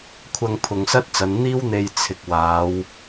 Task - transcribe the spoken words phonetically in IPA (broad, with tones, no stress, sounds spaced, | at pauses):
kʷʰ ɐ˧ ŋ pʰ ʊ˨ ŋ s ɐ˥ t̚ t͡s ɐ˨˧ n n̪ iː˥ w n̪ e˧ j t͡sʰ ɪ˨ k̚ w aː˨˧ w